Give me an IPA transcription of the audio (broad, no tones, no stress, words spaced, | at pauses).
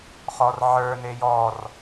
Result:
χɔrʕə˞ nejɔr